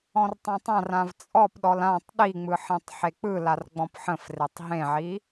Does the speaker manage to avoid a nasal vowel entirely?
no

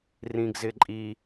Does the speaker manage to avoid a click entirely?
no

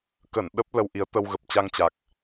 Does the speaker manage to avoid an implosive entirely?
no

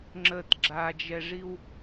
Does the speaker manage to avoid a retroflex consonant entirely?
no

